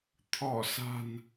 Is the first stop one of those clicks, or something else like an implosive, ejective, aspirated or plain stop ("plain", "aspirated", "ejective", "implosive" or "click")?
aspirated